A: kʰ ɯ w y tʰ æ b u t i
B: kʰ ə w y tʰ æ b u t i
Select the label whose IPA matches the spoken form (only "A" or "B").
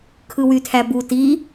A